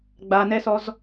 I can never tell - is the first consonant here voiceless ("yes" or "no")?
no